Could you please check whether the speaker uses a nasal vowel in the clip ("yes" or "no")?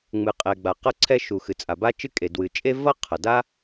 no